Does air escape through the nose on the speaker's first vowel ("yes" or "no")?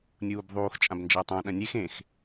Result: no